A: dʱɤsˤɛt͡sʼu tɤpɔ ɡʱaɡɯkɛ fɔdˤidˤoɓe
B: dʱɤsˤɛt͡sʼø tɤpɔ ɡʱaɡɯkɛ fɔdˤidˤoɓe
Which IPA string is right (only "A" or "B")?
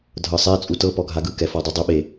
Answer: A